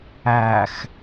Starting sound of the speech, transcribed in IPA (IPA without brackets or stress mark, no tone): æ